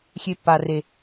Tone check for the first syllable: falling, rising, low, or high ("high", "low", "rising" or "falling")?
high